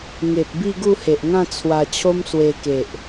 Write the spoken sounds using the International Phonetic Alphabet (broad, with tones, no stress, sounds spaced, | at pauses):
ŋ e˨ p̚ b i˥˧ ɡ u˥˧ h e˨ ʔ ŋ ã˥˧ t͡sʰ w a˧ t͡ɕʰ o˦ m s w e˧ k e˨ ʔ